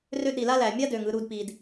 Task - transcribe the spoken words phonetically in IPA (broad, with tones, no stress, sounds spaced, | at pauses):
r ø˦ d ɾ i˩ l a˥ l æ˩ mʲ a˥ d ø˩ ŋ ɯ˨ ɾ u˨ d p i˩ d